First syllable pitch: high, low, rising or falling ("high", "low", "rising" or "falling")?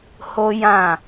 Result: high